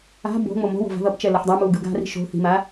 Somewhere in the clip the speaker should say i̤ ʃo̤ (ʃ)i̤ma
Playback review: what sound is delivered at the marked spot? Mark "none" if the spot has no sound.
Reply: θ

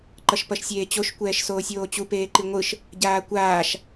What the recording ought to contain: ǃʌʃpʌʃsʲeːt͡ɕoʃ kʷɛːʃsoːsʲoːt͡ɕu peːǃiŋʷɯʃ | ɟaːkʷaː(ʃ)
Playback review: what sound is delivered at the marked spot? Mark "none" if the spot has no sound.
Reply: ʃ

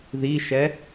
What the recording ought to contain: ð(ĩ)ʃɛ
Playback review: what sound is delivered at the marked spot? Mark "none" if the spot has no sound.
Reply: i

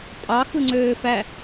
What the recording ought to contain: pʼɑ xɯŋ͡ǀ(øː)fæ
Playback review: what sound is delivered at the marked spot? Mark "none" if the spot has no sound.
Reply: øː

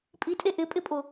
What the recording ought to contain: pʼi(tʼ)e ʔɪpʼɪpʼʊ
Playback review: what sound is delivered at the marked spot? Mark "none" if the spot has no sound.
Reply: tʼ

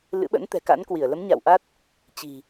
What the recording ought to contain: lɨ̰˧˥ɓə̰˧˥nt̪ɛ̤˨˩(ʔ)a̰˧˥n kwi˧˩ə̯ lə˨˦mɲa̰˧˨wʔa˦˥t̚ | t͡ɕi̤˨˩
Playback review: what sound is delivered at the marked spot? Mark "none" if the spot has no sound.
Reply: k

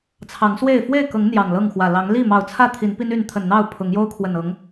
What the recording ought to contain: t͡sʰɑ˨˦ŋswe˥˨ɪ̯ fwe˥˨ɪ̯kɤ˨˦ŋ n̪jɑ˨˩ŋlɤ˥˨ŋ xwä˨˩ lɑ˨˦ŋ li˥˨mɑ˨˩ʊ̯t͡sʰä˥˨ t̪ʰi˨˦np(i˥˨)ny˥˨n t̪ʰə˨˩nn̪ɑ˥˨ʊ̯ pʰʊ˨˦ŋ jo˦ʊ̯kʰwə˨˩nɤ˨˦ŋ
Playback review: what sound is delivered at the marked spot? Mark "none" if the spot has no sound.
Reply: i˦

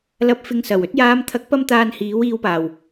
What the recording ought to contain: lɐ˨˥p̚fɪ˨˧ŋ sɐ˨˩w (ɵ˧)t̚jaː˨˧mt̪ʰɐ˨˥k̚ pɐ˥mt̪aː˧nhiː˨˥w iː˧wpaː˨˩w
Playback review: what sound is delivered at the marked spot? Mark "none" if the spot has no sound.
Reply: ɵ˧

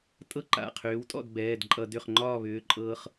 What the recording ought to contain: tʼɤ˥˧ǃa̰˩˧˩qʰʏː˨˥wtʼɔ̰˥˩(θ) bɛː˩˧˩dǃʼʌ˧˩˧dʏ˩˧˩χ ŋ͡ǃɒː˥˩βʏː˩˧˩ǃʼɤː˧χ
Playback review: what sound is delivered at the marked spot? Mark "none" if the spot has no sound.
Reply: d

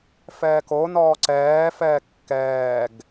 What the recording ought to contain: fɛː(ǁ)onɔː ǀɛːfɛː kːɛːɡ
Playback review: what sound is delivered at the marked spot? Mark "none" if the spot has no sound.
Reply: k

